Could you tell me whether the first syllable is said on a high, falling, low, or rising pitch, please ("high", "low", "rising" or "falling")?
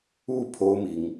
falling